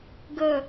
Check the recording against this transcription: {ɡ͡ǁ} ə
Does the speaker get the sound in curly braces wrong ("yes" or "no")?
yes